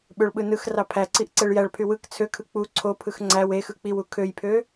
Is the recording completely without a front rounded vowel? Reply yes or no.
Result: no